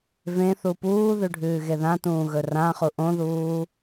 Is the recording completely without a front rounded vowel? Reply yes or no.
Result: yes